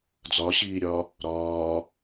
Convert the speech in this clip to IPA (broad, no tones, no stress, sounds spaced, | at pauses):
d͡z ɒ ɕ iː ɾʲ ɒː | ɾ ɒː